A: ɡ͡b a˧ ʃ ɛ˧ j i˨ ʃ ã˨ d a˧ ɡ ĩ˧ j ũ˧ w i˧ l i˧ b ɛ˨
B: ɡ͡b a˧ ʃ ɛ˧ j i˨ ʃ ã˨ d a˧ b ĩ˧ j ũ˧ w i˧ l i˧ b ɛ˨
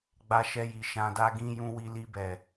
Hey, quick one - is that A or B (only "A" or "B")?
A